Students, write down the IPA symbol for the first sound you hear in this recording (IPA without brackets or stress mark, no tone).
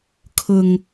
kʰ